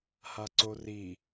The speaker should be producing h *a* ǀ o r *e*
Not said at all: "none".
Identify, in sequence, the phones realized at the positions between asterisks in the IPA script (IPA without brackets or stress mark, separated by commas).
a, i